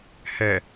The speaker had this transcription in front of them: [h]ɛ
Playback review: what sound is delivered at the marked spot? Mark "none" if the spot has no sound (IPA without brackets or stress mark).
h